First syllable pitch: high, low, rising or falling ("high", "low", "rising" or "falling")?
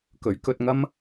rising